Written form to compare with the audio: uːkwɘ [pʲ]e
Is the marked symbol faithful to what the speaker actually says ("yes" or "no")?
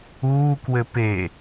no